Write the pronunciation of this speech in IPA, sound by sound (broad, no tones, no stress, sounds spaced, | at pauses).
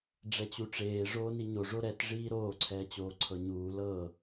ɖ͡ʐ ɛ t͡ɕ u ʈ͡ʂ eː ʐ oː n i ɲ o ʐ o ɾ ɛ t ʐ iː ɾ oː ǀʰ ɛː t͡ɕ oː ǀʰ ɤ ɲ uː l ɤ